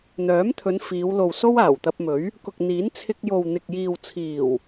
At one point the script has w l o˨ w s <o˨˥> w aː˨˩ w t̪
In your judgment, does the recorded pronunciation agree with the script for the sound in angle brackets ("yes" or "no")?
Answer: no